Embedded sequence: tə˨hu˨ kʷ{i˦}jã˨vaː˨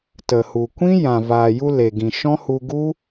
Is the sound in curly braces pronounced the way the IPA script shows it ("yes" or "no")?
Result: no